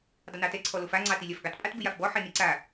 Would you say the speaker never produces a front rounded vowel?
yes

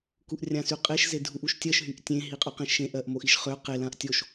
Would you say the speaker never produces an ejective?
no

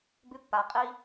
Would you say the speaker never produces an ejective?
no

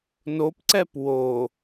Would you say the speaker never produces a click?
no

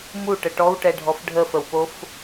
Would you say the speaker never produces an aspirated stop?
yes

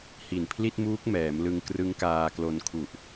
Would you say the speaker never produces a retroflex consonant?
yes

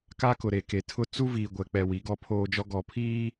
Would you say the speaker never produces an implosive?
yes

